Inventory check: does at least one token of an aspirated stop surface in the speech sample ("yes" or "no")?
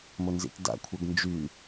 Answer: yes